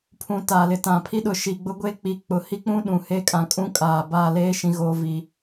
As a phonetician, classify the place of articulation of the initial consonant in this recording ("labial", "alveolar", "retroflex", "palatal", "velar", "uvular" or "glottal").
labial